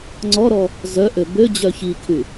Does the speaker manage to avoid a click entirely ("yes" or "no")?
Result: no